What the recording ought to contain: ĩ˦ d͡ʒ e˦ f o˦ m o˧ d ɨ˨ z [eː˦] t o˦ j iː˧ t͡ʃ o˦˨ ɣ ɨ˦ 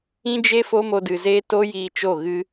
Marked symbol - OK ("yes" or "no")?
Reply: yes